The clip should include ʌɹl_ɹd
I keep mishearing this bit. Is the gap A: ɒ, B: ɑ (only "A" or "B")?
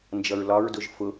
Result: A